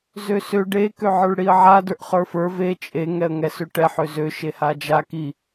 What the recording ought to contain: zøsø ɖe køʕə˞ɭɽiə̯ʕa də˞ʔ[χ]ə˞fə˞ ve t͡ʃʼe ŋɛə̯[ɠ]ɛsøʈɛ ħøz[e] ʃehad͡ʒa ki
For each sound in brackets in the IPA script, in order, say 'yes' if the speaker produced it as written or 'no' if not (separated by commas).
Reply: yes, no, no